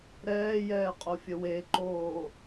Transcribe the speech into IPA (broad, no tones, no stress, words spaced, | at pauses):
ɾɛːjɛːqʼofʲə weǃoː